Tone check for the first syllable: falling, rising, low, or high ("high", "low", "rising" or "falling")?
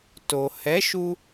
low